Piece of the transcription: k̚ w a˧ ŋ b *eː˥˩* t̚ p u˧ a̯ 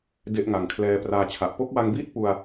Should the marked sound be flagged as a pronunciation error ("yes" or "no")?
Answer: yes